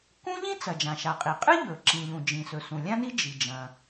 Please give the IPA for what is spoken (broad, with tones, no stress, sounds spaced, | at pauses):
k ũ˥ ʎ ĩ˥ t͡s ɐ˩ d͡ʒ ã˩ ʃ a˩ qʼ i˩ qʼ ɨ˥ ʎ ɵ˩ ǁ ĩ˩ ʎ ũ˩ d͡ʒ ĩ˩ s ɵ˩ s ũ˩ lʲ ã˥ n i˥ d͡ʒ i˩ d͡ʒ ɐ̃˩